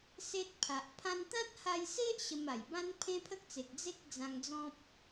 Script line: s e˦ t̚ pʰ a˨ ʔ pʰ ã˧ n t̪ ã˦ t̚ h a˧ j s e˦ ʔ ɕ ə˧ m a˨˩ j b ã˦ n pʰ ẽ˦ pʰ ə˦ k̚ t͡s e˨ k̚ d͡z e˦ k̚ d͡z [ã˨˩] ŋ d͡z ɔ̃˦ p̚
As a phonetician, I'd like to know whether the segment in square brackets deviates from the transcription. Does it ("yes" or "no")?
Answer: yes